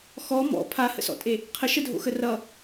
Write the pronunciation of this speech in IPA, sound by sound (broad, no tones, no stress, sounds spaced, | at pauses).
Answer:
x ɔ m ɔ̰ pʰ a h ə̰ s ɔ̰ tʼ e | qʰ ə ʃ ə dʱ o̰ x ə r ʌ